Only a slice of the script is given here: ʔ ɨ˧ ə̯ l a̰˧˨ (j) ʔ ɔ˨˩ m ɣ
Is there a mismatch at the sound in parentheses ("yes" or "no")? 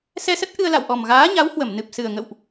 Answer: yes